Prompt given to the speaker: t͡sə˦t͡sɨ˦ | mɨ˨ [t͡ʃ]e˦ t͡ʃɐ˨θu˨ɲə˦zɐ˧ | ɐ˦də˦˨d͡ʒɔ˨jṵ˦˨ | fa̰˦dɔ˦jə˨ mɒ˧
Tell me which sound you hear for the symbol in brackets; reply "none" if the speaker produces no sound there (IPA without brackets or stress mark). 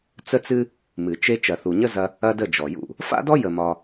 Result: t͡ʃ